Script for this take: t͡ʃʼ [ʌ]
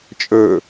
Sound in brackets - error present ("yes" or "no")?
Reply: yes